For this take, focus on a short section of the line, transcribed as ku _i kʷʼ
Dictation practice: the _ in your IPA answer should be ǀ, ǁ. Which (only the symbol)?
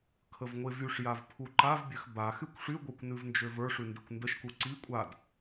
ǀ